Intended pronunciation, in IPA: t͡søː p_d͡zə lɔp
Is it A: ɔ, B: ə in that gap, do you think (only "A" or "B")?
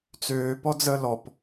A